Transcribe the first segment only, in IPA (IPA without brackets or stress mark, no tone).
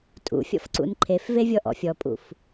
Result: tʼ